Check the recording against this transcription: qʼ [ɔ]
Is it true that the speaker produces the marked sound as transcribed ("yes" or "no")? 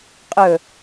no